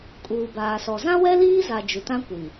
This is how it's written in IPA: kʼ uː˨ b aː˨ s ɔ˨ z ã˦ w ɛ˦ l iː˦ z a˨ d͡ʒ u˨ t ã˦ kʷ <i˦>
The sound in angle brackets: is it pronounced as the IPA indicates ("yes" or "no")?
no